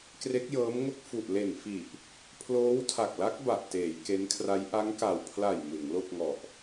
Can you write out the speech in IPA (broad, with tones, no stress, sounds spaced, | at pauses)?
k r e˦˥ k̚ j ɤː˦˥ m ŋ o˥˩ k̚ f u˨˩ ʔ l e˨˩ n f i˨˩ ʔ | pʰ l oː˦˥ w tʰ a˨˩ k̚ l a˦˥ k̚ b a˨˩ ʔ t eː˩˦ j k e˦˥ n kʰ r a˦˥ j ʔ a˦˥ ŋ k a˨˩ w pʰ l a˨˩ j m ɯ˩˦ ŋ l o˥˩ k̚ ŋ ɔ˨˩ ʔ